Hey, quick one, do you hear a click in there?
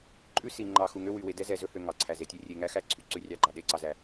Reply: yes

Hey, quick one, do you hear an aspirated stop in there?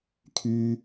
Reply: yes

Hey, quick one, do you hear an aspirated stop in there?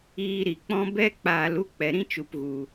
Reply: no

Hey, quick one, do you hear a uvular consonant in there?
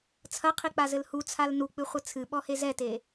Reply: yes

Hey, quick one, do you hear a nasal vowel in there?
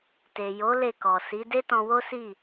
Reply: yes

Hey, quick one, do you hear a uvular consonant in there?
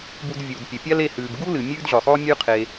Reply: yes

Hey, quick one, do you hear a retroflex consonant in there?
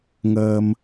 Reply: no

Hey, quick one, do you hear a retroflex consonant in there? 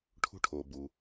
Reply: yes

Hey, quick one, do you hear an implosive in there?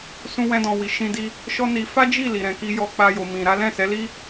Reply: no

